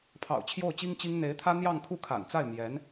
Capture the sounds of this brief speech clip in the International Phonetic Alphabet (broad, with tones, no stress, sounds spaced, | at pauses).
pʰ ɑ̰˨˩ ʊ̯ t͡ɕʰ j o˥˩ ʊ̯ t͡ɕ i˥ ŋ t͡ɕ i˥ ŋ n̪ e˧˥ ɪ̯ t̪ʰ ä˥ n̪ j ɑ˥˧ ŋ kʰ u˥˩ kʰ a̰˨˩ n t͡s a˥˩ ɪ̯ m j ɛ˧˥ n